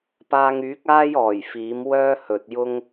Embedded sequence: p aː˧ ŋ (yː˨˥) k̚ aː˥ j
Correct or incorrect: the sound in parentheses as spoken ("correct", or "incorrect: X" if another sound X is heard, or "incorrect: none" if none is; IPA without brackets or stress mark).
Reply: correct